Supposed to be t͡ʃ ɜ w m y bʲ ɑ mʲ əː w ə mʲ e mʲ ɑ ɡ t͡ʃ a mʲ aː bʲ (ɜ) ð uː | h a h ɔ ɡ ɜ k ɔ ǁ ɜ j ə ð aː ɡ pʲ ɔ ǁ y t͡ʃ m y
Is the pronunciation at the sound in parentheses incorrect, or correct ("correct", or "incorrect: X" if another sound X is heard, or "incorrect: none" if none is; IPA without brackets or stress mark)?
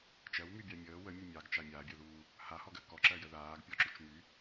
correct